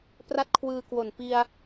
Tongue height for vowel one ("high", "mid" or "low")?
low